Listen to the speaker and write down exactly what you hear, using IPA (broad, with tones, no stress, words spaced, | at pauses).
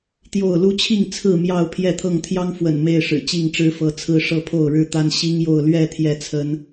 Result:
t̪jo˥˨ʊ̯ lu˦t͡ɕʰi˥˨ŋ t͡sʰɹ̩˥˨mjɑ˥˨ʊ̯ pʰjɛ˥˨t̪ʰɤ˥˨ŋ t̪ʰjɑ˦ŋfwə̰˨˩n me˥˨ɪ̯ʂɻ̩˨˩ t͡ɕi˥˨ŋʈ͡ʂɻ̩˦fɤ˨˦ t͡sʰɹ̩˦ ʂɤ˥˨pʰo˥˨ʊ̯ɻɻ̩˥˨t̪a˦n ɕi˦ŋjo˥˨ʊ̯ lɥɛ˥˨ t̪ʰjɛ˥˨t͡sʰə˦n